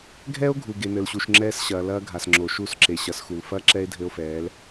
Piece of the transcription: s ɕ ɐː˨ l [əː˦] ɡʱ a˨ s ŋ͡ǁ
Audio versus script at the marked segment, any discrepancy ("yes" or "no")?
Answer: yes